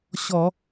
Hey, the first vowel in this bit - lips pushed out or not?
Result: yes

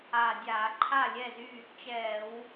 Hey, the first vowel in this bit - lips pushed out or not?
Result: no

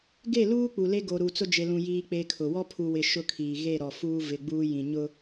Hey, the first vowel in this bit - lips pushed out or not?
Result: no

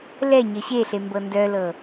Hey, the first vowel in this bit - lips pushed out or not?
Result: no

